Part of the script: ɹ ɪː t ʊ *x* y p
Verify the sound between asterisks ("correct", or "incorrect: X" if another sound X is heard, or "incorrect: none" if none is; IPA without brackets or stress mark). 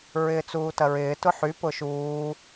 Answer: incorrect: ħ